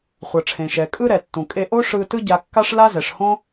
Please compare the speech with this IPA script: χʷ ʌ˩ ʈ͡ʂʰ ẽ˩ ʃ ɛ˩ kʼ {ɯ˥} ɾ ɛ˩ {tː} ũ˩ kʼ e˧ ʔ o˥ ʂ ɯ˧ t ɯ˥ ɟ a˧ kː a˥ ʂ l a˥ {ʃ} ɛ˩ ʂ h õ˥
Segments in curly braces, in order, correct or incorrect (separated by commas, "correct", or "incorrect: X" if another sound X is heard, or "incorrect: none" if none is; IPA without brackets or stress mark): correct, correct, incorrect: z